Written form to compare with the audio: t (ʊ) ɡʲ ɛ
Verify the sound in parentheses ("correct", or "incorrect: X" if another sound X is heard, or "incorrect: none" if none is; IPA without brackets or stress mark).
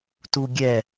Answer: incorrect: u